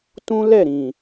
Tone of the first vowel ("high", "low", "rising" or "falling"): high